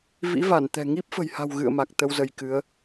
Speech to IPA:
v ḭ˧˥ v a˧˩ n t̪ ɛ̤˨˩ ŋ i˦˥ p̚ f ə̤˨˩ j h a̤˨˩ w ɣ ɨ̰˧˨ ə̯ m a˨˩ k̚ t̪ ə˧ w z ə˧ j k ɨ˨˦ ə̯

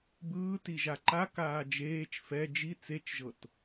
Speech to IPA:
b ɯː t i ʒ a ǃ a k aː d͡ʒ eː t͡ʃ f ɛ d͡ʒ i t͡s e t͡ʃ ʒ ɤ t

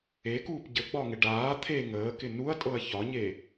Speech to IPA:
e k uː p ɟ ə ɡ͡b ɒ ŋ ɪ ɖ aː t̪ʰ e ŋ əː k ɪ n u ɐ̯ tʼ ɤ ɐ̯ ç ɒ ɲ e

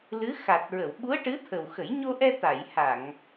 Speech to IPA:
l ɨ˧˥ x a˨˩ t̚ ɹ ə˨˩˨ w ɓ u˧˥ ə̯ ʈ ɨ˧˥ t̪ʰ ə˨˩ w x ə˨˩˦ j ɲ o˧ ʔ ɛ˧ t̪ a˨˩˨ j h a˨˩˨ ŋ

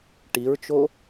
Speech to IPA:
ʈ i ɹ t͡ʃ o

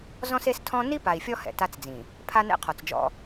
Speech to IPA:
z ɔ̃˦ s e˦ s tʰ ɔ̃˦ n i˦ p a˨ i̯ fʲ ɔ˦ h ɛ̰˨ t a˦ t͡s d͡z ĩ˨ | pʰ a˦ n ɛ̰˦ qʰ ɔ˨ t͡s d͡ʒ ɔ̰˦

